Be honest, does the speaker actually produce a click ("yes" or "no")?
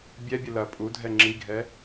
yes